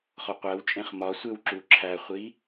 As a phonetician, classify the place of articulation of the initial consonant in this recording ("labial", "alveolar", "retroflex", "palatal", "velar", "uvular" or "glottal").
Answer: uvular